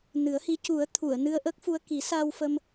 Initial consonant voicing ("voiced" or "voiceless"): voiced